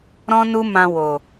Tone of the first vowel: high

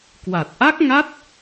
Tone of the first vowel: low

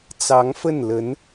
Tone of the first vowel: rising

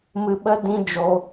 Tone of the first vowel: low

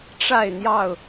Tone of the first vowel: falling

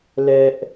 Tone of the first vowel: high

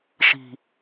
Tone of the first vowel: low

